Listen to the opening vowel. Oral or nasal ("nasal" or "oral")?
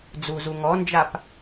oral